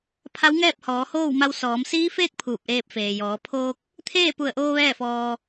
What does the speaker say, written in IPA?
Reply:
pʰa˧˥wŋɛː˥˨p̚ hɔː˩˧hoː˥˨wma˧wsɔː˩˧m siː˧˥feː˥˨k̚ pʰuː˧˩p̚ʔeː˧p̚ feː˩jɔː˩˧ pʰoː˧k̚ | t̪ʰeː˥˨pu˧˩ə̯ʔoː˧ ʋɛː˥˨fɔː˧

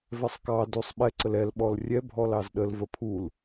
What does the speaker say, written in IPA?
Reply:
vɛsˤkɑdusˤ ɓɛǀəl ɛlɓɔl rʲɛ bʱɔlɑzɗəlvə pʰul

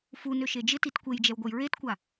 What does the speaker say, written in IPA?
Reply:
funø ʃed͡ʒɪtit kʷejd͡ʒɛwɡʷɐj ɹetkʷa

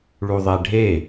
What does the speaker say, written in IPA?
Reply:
ɭuðˤɛɖʱe

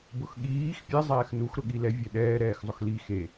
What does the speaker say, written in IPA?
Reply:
bʊxɠiːx pʲɛ zˤɛːxnux ɾʊɠilɛ vʲɛɗɛː ɾɛːxzˤʊxli xe

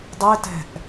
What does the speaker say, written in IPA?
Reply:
dˤɪtɛ̤ʔ

